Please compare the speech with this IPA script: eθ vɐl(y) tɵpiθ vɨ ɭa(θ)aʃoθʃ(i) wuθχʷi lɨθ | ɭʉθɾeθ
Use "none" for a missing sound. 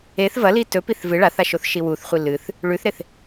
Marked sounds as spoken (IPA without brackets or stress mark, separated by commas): i, θ, i